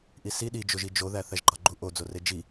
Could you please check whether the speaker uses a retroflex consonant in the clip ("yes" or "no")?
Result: no